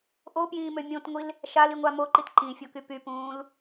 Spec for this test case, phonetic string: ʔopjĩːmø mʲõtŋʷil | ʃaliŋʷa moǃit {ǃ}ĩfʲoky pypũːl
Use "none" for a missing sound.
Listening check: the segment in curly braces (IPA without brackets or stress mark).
ǃ